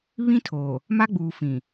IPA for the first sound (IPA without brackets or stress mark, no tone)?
β